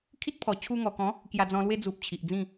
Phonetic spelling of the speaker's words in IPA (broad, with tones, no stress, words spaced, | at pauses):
kʰi˦t̚ pʰɔ˨˩t͡ɕʰu˧ŋɔ˨˩kɔ̃˨˦ | kja˧d͡zɔ̃˧lwe˦ d͡zu˨p̚ t͡ɕʰi˨ʔd͡zĩ˥˧